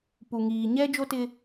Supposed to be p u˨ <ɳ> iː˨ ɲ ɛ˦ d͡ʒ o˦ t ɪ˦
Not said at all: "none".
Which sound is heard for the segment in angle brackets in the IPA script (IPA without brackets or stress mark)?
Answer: ŋ